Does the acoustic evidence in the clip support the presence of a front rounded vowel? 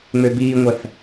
yes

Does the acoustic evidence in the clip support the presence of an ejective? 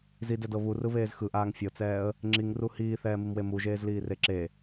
no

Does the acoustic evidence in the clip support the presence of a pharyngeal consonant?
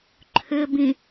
no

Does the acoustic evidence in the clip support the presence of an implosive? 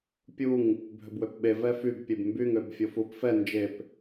yes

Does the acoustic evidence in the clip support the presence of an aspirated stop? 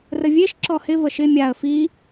no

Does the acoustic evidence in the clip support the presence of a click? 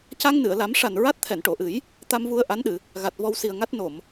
no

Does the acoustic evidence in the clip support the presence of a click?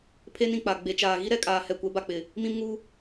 no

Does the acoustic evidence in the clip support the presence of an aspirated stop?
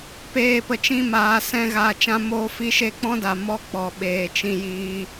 no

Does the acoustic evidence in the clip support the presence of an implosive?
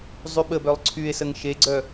yes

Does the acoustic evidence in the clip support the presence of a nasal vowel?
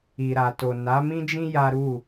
yes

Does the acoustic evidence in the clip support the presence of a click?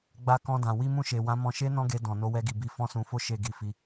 no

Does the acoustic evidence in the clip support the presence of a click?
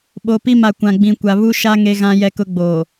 no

